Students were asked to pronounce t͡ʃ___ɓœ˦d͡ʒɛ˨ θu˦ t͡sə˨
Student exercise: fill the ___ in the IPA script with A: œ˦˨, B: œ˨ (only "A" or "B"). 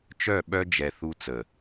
A